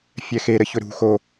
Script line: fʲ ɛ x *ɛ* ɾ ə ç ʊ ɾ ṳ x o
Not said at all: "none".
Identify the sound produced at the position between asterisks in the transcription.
e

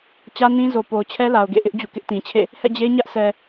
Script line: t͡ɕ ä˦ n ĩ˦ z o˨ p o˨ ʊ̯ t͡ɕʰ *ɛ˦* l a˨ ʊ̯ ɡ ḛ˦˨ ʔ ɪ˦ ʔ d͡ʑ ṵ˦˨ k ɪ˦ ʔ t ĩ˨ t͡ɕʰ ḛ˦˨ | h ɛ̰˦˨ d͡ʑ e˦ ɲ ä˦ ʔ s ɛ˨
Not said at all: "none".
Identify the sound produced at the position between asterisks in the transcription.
ɛ˦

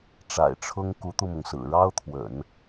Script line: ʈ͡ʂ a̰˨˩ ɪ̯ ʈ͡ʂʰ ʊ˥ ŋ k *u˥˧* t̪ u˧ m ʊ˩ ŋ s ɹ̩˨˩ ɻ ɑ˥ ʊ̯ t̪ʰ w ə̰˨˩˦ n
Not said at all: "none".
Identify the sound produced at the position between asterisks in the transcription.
u˧˥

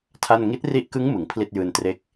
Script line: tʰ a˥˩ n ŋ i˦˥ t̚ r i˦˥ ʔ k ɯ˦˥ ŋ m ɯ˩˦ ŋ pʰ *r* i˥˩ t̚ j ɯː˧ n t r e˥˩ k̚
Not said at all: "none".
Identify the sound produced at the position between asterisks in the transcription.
l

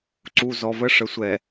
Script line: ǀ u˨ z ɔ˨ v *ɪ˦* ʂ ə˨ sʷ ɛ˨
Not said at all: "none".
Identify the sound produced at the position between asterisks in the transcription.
ə˦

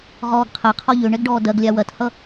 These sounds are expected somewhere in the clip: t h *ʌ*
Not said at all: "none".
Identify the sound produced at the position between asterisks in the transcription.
ʌ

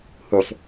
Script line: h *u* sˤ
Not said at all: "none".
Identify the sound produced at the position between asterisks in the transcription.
u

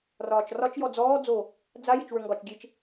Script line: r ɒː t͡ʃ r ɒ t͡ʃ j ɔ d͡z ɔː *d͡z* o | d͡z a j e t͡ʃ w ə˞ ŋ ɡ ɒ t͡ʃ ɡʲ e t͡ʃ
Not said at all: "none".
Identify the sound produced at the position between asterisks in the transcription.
d͡z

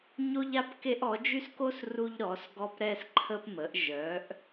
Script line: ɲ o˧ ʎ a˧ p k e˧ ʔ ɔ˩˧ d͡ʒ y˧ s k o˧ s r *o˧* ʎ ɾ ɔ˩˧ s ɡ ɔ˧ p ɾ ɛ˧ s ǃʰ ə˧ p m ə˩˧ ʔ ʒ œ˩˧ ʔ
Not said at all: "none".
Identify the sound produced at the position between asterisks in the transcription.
u˧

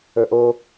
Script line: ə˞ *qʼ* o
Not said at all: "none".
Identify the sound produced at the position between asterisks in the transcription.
ʔ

